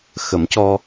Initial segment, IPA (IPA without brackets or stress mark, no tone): x